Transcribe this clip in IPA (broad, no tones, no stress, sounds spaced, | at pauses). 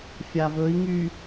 fʲ a v ɵ i̯ ŋ y